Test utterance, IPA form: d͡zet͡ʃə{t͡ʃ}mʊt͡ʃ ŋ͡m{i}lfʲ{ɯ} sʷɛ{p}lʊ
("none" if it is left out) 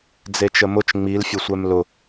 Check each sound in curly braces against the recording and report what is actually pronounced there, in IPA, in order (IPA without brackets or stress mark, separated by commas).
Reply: none, i, ʊ, m